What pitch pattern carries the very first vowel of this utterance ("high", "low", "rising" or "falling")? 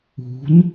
rising